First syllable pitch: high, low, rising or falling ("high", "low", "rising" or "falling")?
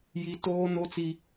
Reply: high